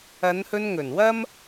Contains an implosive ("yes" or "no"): no